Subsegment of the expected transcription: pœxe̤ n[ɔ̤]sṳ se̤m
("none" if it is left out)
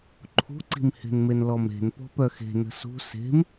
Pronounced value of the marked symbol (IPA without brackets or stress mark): ə̤